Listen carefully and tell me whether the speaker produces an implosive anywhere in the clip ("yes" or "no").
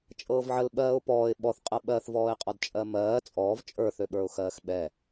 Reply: yes